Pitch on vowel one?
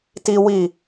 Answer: high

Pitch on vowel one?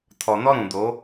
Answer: low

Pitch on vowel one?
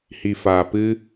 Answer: low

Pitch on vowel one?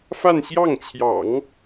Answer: falling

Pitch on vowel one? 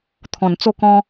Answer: low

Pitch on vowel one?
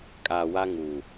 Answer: low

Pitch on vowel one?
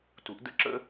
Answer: rising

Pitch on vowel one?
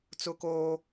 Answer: high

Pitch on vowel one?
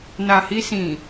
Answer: low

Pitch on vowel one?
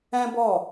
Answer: high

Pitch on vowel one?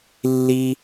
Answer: high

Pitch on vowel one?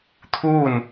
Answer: falling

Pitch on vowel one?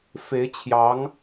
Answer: rising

